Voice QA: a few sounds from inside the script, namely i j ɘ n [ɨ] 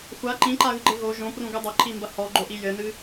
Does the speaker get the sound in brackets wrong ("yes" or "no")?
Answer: no